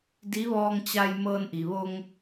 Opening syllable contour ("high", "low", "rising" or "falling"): rising